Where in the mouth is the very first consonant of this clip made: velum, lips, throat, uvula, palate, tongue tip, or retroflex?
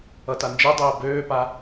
tongue tip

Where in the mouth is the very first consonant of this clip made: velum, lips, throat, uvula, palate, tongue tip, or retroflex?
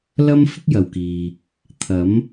tongue tip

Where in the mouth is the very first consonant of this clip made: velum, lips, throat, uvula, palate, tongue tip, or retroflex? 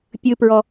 lips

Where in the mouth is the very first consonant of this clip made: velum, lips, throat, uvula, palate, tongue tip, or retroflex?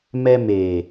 lips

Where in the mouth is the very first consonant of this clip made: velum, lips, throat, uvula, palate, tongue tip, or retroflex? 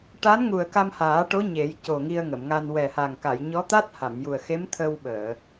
retroflex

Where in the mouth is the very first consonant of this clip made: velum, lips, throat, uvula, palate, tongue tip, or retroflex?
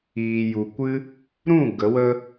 palate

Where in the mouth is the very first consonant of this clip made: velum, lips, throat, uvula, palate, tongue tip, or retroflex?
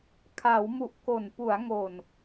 velum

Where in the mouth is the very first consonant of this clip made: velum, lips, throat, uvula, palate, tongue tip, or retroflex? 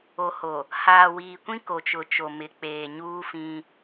throat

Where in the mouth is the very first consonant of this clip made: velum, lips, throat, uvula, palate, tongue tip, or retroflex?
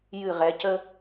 palate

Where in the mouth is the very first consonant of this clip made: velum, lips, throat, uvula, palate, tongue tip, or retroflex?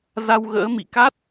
tongue tip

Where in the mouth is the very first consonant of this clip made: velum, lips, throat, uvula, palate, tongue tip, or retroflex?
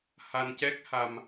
throat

